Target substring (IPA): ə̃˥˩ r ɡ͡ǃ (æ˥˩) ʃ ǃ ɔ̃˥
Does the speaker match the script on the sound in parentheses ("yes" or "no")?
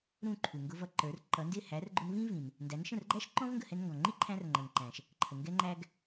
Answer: no